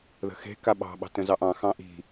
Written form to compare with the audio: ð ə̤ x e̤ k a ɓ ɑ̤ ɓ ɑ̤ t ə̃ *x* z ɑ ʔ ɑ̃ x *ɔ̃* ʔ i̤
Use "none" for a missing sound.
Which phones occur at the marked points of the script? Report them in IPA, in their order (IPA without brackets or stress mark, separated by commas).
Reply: none, ɑ̃